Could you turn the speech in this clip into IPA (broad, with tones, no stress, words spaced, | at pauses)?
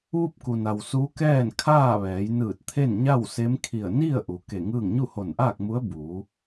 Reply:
ʋu˥˨p̚ ku˩na˩w su˧˥kɛː˥˨n kʰaː˥˨ʋɛː˩˧jnɯː˧˩t̚t̪ʰe˥˨n ɲa˥˨wse˧˥mkʰi˧˩ə̯ ni˥˨ə̯ʔu˩˧ ke˧˩ŋɯː˥˨ŋ ɲu˥˨ho˧˩nʔaː˥˨k̚mu˧˥ə̯ buː˩˧